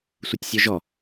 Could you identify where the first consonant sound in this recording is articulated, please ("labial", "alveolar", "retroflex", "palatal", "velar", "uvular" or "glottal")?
alveolar